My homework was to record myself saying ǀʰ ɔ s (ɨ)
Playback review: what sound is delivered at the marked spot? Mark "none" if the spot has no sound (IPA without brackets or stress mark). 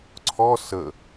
ə